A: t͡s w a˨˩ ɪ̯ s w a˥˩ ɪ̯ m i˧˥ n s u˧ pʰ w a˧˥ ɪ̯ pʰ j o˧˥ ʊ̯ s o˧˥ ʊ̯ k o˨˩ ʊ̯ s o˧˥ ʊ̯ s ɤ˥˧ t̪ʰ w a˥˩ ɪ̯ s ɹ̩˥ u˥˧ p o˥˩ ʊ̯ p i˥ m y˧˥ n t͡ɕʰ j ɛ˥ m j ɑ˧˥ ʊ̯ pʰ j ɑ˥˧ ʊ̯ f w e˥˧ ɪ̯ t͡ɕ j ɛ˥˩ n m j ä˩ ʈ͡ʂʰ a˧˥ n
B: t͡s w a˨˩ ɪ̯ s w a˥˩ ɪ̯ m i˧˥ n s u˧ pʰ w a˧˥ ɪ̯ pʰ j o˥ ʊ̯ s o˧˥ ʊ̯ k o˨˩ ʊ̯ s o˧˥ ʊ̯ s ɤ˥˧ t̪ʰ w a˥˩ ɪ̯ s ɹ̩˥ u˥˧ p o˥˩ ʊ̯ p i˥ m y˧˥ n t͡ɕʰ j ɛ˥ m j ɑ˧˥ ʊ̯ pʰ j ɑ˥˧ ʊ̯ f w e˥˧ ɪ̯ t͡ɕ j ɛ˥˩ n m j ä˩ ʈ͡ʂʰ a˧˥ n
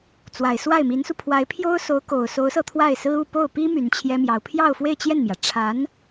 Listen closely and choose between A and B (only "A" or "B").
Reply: B